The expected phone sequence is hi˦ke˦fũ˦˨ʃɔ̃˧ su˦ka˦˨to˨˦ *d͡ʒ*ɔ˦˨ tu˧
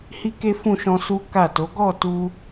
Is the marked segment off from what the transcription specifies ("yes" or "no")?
yes